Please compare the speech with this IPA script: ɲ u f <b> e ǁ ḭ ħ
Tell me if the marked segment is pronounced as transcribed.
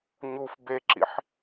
yes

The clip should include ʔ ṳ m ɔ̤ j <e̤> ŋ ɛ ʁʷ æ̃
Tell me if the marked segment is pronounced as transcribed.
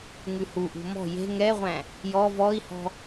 yes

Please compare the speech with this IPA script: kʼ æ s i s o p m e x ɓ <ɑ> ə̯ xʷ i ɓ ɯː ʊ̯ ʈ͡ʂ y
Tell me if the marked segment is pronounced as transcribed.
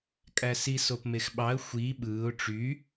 yes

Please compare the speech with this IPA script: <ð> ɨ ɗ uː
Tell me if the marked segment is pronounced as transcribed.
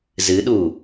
no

